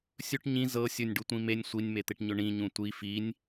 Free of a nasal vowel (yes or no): no